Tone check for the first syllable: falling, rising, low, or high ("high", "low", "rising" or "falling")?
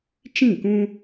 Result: falling